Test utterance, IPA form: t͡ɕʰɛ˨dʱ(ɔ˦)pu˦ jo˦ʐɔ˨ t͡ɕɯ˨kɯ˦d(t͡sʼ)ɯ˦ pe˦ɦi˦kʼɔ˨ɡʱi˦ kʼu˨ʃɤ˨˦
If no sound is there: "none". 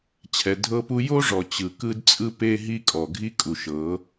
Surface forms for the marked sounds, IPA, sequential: ɤ˦, t͡sʼ

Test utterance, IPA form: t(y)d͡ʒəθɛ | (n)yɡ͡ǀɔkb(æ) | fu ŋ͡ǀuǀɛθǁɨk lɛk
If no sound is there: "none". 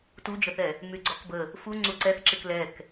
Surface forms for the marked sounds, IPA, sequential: u, m, ə

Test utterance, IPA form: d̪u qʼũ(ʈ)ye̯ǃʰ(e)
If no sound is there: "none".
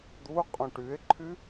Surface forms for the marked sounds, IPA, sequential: ʈ, y

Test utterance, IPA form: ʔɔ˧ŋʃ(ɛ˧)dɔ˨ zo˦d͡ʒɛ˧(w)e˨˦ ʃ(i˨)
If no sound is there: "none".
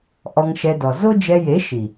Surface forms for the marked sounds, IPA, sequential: ɛ˧, j, i˨

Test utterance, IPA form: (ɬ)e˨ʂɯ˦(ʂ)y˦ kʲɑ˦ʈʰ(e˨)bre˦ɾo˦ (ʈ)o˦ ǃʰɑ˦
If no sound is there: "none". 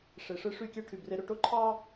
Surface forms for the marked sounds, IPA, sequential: ʂ, ʂ, y˨, ʈ

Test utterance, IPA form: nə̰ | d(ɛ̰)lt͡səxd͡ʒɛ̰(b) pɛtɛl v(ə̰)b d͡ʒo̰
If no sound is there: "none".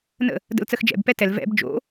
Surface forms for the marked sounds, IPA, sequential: ə̰, b, ɛ̰

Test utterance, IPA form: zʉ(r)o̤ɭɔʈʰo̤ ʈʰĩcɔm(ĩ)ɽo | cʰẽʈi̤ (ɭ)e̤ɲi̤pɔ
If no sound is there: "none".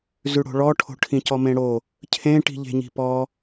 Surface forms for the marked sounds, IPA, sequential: ɽ, ẽ, ʎ

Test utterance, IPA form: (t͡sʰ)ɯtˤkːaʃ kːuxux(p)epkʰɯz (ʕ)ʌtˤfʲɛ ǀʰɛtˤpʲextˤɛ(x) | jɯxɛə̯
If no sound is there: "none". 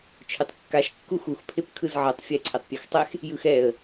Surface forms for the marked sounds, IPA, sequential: t͡ʃʰ, pʰ, ʕ, x

